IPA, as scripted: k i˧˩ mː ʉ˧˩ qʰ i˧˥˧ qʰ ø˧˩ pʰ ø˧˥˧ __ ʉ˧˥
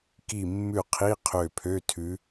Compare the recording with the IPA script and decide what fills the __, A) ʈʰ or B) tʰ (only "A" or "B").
B